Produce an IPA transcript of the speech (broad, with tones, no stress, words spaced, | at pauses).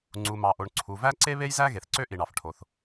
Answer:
ŋ͡ǀu˩mɑ˩ʔo˩ɳ ǀʰu˩ væ˥ǀe˥βe˥jzæ˥ ɣe˩θǀø˥ʔi˩ɳɑ˩f ʈʰo˩θ